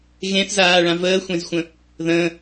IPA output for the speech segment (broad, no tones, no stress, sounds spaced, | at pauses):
ɣ ẽ θ z aː ɭ ã v əː xʷ ẽ z xʷ ə̃ | ð ə̃